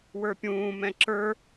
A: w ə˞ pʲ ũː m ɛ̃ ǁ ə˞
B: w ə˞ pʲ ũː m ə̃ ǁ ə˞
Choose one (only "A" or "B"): A